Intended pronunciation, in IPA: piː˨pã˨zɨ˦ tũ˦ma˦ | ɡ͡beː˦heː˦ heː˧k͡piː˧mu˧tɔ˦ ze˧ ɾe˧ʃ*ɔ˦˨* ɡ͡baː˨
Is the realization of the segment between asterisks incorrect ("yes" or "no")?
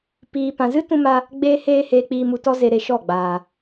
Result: no